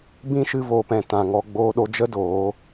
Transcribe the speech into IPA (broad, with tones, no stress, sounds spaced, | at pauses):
b ĩ˦ ʃ ɨ˧ v oː˨ p ɛ̃˨ t ã˨ ŋ ɔ˧ ɡ͡b oː˧ ɗ o˧ d͡ʒ ə˦ d oː˨˦